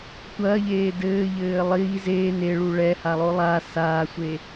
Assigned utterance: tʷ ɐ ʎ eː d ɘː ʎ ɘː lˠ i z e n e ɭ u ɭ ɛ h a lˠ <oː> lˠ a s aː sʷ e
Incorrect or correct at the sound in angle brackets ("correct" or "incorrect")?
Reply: incorrect